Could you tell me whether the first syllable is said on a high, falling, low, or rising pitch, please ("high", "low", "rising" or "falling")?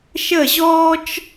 falling